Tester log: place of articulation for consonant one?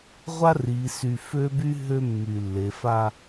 uvular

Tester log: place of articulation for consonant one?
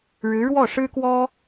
retroflex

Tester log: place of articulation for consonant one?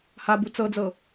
glottal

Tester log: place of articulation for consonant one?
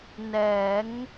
alveolar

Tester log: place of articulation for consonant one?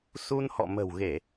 alveolar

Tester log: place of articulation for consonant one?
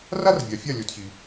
alveolar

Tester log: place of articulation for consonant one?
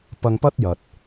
labial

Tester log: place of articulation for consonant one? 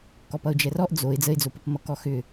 velar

